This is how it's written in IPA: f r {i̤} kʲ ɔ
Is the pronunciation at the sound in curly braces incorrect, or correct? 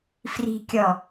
correct